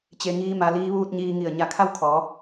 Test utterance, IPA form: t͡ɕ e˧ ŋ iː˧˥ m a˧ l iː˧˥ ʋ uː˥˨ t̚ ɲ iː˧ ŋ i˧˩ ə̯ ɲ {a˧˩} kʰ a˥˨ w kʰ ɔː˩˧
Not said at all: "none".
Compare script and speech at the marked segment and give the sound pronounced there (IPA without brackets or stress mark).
a˧˩